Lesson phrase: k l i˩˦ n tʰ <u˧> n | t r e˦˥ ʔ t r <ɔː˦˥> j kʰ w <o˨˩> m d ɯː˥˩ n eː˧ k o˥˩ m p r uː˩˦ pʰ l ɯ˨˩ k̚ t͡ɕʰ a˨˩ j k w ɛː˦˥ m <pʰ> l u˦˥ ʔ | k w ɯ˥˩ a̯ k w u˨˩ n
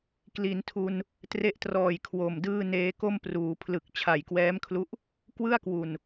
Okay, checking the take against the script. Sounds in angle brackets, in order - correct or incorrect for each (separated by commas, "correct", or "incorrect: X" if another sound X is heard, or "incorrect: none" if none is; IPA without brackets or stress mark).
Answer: correct, incorrect: ɔː˨˩, correct, incorrect: kʰ